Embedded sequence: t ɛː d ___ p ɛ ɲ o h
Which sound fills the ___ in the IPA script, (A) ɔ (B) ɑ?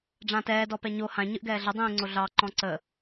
A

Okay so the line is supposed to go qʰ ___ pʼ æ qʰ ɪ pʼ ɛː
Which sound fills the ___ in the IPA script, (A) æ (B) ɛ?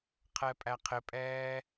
B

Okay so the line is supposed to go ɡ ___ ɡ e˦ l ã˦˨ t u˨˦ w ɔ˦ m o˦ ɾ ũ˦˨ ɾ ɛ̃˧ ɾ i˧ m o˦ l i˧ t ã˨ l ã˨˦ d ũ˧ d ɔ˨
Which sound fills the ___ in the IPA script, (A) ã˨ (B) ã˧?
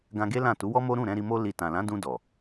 B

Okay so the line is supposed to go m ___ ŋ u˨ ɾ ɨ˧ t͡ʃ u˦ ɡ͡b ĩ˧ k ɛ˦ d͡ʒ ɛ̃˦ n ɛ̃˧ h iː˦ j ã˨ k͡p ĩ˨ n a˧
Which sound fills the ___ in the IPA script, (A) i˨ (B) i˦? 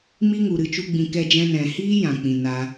B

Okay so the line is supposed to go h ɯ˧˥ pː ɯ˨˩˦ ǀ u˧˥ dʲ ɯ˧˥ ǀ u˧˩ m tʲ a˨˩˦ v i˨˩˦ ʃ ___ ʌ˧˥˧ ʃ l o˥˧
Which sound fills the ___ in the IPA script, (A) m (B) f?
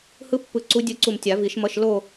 A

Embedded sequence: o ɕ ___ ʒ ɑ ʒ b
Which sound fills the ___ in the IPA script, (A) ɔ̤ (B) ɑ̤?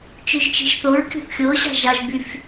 B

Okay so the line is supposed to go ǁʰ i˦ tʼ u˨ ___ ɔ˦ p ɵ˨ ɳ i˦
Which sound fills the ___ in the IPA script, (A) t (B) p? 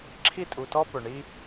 A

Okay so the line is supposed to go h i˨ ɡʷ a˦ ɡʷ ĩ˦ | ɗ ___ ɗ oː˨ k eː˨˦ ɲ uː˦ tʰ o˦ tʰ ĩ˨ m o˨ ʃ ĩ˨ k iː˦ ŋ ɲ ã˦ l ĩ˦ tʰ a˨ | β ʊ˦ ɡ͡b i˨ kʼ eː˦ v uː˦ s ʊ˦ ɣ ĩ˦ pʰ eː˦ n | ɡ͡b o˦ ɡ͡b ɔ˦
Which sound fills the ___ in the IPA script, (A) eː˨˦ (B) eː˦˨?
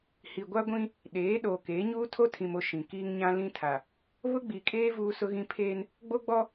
A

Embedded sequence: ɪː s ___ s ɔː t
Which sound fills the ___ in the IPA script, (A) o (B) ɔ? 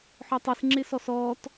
B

